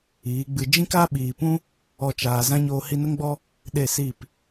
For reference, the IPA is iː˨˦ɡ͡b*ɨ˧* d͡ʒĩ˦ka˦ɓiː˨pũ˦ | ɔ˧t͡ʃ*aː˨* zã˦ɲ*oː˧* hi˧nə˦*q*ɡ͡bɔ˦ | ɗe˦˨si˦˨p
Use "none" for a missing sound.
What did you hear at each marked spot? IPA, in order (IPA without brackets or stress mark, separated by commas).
ɨ˧, aː˨, oː˧, ŋ